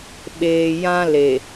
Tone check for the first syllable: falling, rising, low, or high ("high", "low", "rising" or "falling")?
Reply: low